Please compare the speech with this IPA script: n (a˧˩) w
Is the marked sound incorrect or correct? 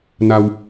incorrect